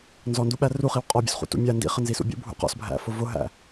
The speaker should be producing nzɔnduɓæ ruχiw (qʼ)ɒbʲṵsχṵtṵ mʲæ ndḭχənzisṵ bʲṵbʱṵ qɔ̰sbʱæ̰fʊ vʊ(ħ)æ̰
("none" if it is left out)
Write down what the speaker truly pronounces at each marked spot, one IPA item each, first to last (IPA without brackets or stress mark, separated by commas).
qʼ, ɦ